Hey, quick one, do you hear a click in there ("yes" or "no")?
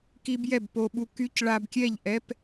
no